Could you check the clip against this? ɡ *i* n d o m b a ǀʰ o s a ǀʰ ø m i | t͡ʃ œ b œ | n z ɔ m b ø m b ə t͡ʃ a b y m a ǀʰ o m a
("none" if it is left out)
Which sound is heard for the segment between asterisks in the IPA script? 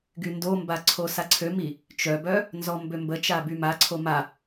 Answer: y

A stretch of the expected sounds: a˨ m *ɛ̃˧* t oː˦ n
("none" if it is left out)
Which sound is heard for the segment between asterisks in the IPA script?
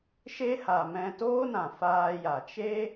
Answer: ɛ̃˧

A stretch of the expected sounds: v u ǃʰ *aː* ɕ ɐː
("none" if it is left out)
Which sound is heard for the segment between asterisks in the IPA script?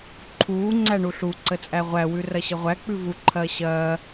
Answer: ɐː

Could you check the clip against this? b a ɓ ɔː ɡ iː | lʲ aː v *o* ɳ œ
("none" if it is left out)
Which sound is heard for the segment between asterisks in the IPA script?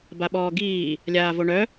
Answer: o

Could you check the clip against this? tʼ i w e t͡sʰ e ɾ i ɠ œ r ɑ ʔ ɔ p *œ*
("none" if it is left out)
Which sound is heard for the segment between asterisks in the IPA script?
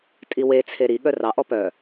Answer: œ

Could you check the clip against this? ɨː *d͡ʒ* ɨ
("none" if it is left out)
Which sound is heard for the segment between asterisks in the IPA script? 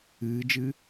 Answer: d͡ʒ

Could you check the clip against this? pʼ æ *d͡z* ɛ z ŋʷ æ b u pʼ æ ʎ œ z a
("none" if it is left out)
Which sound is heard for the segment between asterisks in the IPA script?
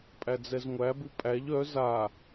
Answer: d͡z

